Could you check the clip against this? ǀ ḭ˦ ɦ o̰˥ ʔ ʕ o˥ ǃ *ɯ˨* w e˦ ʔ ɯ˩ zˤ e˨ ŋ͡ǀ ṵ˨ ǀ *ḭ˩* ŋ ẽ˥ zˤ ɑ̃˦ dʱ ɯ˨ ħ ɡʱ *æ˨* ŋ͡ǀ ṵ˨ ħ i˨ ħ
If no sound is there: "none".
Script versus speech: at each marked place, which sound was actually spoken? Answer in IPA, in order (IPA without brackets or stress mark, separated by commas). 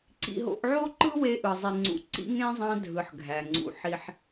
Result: ɯ˥, ḭ˥, æ˩